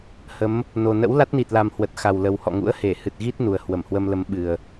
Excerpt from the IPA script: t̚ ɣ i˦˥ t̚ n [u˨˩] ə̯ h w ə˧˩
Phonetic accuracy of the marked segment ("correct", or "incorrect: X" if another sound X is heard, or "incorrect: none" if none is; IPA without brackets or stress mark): correct